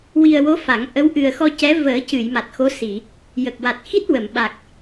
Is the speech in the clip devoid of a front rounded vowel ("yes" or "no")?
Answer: yes